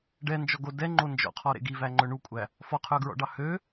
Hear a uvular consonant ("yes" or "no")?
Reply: yes